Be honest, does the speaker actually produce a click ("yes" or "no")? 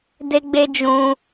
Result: no